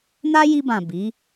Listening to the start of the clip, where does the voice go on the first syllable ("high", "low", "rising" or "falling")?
high